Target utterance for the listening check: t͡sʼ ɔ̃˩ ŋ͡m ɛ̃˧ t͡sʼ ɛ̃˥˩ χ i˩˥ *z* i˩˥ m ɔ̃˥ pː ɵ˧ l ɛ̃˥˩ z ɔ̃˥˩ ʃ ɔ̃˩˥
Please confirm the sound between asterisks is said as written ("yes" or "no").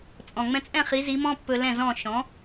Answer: yes